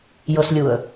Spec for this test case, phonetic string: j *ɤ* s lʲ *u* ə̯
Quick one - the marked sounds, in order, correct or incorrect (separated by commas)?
correct, correct